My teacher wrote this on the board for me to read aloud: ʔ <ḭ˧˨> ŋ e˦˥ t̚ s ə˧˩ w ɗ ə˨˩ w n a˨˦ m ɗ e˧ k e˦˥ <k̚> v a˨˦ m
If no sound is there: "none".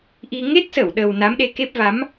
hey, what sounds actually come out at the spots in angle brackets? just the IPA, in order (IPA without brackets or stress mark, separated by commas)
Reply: i˧, p̚